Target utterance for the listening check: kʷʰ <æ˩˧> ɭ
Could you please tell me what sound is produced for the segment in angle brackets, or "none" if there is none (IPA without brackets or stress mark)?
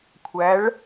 æ˩˧